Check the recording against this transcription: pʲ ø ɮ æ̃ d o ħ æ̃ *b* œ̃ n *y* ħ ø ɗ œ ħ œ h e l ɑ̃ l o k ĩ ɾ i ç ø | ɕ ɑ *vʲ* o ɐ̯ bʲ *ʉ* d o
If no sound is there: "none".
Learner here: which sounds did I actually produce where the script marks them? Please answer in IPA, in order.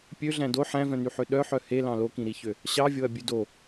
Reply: v, y, vʲ, ʉ

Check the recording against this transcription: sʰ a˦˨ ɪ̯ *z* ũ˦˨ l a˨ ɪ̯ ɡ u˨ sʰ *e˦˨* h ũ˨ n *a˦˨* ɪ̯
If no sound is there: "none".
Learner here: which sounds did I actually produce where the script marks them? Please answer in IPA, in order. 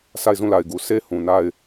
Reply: z, e˦, a˦˨

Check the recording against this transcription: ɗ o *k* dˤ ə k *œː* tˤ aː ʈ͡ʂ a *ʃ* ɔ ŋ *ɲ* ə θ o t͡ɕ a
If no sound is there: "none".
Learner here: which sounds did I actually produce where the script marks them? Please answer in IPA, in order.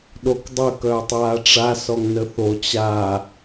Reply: k, œː, s, n

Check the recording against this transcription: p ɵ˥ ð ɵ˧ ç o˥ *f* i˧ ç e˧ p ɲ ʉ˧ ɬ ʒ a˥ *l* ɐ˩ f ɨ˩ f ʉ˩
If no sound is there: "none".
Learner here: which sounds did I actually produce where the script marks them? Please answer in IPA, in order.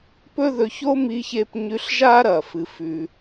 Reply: m, ɾ

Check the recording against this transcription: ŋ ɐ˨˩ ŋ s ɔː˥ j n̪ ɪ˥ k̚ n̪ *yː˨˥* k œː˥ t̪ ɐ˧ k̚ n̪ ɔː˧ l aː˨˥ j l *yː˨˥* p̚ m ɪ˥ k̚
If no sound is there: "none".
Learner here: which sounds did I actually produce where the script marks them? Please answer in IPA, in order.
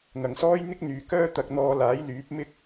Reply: yː˨, yː˨˥

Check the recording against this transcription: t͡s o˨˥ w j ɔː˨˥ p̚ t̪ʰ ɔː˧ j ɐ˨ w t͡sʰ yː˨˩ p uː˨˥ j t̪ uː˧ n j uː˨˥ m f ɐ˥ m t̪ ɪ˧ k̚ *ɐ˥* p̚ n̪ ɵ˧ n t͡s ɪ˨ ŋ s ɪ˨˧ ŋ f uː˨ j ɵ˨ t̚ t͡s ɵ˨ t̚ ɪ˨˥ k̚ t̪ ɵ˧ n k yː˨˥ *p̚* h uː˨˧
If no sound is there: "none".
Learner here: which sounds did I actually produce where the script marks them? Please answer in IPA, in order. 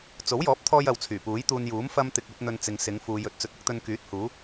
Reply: ɐ˥, t̚

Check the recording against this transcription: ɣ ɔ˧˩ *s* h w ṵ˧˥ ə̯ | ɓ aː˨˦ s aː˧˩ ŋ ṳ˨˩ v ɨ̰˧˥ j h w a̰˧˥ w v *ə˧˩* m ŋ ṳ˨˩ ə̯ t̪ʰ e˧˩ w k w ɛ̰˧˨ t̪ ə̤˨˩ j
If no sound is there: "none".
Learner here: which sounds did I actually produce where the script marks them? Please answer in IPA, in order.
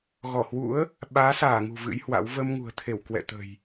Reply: none, ə˧

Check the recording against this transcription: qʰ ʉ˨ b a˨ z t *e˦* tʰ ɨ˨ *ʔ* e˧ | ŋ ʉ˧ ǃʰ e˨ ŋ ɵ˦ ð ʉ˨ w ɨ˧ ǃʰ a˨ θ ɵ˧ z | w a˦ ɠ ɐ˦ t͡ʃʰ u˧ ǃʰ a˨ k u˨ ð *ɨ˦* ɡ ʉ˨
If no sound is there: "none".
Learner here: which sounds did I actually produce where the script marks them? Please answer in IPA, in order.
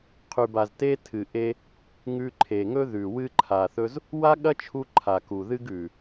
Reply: e˦, ʔ, ɨ˦

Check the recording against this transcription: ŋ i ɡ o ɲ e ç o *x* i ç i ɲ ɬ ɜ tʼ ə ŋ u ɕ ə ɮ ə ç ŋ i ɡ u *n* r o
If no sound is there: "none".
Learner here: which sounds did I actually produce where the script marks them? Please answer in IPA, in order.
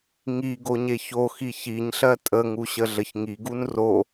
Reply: x, n

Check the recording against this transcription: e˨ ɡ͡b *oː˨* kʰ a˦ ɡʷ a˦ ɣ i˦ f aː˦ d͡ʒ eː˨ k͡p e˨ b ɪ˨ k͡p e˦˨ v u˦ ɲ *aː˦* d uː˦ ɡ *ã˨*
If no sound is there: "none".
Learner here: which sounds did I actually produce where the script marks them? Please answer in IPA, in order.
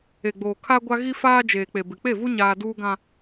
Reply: oː˨, aː˦, ã˦

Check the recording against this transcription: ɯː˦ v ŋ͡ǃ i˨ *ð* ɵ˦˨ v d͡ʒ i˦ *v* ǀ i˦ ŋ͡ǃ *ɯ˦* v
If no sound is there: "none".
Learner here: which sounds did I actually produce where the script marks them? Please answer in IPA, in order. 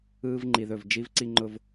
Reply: ð, v, ʊ˦

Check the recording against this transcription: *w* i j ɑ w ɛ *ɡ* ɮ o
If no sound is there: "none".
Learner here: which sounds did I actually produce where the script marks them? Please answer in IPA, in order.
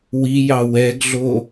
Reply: w, ɡ

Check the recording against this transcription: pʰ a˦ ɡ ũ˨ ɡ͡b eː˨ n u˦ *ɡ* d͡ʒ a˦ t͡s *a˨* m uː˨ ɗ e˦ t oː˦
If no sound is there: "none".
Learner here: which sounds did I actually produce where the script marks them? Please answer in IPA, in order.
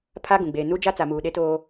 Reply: none, a˨

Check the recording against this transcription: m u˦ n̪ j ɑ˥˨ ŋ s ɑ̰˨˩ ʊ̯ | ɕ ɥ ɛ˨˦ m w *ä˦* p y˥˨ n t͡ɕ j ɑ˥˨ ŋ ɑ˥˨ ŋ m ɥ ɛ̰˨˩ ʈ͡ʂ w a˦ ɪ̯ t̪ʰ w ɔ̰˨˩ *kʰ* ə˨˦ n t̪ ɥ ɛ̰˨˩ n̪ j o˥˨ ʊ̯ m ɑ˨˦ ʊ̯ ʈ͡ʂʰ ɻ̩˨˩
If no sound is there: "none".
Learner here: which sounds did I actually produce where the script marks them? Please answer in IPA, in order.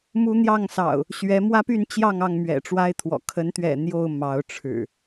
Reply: ä˦, kʰ

